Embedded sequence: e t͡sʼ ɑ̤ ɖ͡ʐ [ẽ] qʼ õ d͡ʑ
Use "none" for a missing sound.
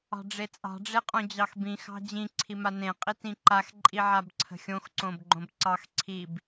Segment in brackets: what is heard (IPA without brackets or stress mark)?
e